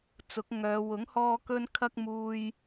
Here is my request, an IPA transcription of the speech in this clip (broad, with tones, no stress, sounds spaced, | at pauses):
t͡s ʊ˨˥ k̚ ŋ œː˨˧ w ʊ˨˥ ŋ h ɔː˧ k ɵ˥ n kʰ ɐ˥ k̚ m uː˧ j